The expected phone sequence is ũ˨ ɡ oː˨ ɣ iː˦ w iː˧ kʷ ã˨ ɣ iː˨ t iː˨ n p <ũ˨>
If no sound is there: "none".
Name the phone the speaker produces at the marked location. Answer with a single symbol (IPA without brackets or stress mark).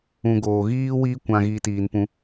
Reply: ũ˧